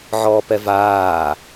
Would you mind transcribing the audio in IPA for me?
ʕ ɔː p ɛ v aː

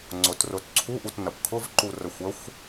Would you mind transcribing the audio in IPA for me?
ŋ͡ǀ ʊ t r ʊ t ǀʰ u ʔ u t n ɐ p kʰ ʊ v ǃ u r ə xʷ ə xʷ

